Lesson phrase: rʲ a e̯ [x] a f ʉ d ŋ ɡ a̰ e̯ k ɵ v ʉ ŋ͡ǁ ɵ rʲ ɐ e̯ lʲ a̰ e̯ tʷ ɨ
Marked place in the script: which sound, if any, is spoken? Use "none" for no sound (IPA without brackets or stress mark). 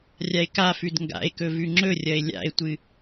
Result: k